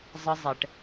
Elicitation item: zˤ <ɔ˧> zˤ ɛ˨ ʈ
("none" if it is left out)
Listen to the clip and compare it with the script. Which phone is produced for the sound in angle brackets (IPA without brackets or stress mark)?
ə˧